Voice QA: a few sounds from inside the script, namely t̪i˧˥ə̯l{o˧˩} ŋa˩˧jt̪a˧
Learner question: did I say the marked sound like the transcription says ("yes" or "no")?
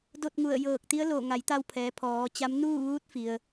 yes